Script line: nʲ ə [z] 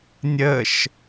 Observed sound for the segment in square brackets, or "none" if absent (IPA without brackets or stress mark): ʃ